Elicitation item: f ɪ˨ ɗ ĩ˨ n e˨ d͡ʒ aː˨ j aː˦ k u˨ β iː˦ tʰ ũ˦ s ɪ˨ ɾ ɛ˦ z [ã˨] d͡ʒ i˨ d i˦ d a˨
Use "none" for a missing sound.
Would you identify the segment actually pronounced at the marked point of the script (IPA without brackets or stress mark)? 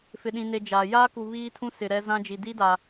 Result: ã˦